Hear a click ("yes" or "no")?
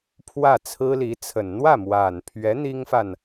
no